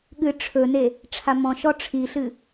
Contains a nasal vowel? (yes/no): yes